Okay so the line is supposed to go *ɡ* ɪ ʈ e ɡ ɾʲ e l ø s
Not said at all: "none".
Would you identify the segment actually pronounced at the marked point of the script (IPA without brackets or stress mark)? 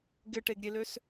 ɡ